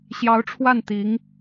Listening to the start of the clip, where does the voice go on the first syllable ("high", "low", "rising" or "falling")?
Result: rising